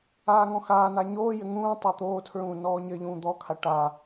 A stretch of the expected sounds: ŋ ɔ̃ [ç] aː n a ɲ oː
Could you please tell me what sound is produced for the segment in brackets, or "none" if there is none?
x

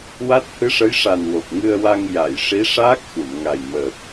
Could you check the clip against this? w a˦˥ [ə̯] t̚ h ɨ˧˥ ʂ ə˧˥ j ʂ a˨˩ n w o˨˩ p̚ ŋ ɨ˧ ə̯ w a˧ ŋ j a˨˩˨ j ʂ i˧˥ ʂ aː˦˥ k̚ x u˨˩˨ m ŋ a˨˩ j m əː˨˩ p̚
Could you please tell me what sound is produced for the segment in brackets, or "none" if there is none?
none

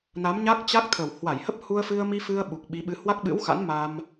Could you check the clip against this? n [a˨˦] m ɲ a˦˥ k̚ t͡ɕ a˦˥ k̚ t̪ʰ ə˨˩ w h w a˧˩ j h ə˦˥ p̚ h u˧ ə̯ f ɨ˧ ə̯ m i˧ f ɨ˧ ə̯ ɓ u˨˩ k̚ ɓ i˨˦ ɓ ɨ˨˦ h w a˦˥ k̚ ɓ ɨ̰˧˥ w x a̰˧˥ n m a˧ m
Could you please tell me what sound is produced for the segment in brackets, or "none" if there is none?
a˨˦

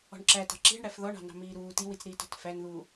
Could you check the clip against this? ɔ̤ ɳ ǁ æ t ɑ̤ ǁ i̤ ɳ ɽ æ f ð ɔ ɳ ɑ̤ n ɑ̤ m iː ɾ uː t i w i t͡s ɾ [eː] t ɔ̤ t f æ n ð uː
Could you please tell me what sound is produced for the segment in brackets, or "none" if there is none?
iː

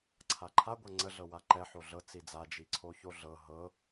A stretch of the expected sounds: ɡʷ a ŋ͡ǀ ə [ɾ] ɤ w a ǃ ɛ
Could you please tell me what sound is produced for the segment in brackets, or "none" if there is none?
ɮ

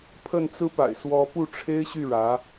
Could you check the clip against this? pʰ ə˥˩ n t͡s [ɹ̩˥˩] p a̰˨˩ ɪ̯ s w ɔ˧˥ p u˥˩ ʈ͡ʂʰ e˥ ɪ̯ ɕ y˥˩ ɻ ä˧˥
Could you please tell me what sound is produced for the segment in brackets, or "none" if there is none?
ɹ̩˥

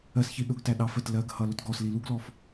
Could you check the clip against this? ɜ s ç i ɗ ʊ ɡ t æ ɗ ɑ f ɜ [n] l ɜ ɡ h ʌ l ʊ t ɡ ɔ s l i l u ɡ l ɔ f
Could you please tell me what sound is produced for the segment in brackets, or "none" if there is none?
t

